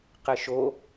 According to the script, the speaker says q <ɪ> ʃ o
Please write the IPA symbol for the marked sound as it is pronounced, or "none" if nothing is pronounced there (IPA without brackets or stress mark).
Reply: ɪ